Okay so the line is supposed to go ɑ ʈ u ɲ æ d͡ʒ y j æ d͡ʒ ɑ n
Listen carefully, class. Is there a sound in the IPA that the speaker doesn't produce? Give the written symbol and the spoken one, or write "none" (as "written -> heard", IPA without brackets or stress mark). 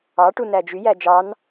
ɲ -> n